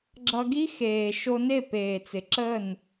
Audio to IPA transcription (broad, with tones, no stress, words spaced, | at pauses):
ɡ͡ǁʌ˧ɡi˦ xeː˨ ʃo˧ne˦˨ peː˨t͡sɪ˨ ǁə˦˨n